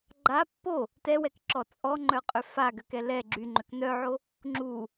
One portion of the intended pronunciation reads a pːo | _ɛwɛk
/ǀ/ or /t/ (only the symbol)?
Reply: t